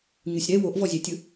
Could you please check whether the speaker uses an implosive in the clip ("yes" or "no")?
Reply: no